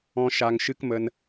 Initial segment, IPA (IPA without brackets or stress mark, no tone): ɔ̃